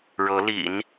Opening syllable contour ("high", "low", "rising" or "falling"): rising